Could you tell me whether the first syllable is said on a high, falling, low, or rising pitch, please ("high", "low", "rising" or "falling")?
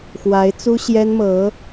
rising